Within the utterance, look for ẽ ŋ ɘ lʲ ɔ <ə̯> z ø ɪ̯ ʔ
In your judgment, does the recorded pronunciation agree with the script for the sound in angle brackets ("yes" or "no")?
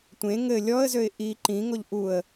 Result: yes